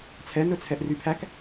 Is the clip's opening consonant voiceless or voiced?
voiceless